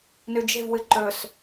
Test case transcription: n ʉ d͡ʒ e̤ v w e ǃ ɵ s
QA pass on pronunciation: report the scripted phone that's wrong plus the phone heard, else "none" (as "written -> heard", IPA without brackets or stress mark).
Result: e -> ɨ